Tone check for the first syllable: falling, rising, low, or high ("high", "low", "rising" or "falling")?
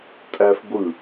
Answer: high